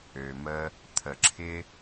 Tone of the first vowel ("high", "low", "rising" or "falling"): low